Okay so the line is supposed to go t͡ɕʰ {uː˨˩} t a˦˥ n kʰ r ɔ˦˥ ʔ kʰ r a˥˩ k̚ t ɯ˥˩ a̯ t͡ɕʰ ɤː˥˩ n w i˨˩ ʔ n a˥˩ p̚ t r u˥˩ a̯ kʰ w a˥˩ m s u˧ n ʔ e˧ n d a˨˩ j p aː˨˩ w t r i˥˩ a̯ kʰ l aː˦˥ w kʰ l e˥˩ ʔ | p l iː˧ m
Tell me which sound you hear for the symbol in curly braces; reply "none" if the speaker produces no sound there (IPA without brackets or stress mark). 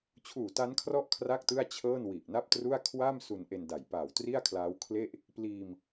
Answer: uː˨˩